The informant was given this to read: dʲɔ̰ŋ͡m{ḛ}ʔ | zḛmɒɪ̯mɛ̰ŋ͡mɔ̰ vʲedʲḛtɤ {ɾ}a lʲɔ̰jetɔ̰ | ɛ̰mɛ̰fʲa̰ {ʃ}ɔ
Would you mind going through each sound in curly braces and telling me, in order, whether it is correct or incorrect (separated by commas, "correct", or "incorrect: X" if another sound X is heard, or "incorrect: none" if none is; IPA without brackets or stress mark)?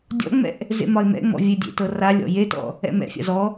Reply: incorrect: ɛ̰, incorrect: r, incorrect: z